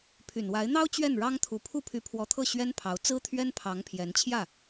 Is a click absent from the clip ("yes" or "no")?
yes